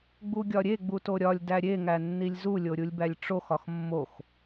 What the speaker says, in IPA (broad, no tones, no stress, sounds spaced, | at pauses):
ɡ͡b u ɡʲ ɒ ɾʲ e ɡ͡b u t o ɾʲ ɒ lʲ d æ ɾʲ e ŋ æ nː i lʲ z u lʲ o ɾʲ u lʲ b æ lʲ ʈ͡ʂ o x ɒ x mː o x